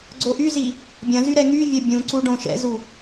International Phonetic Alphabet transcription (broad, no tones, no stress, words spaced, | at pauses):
ɡ͡ǀoʔyzi | bʲɐ̃zy ɾɛŋyvʲœ bʲũǀu ɖõʃɛ̰zu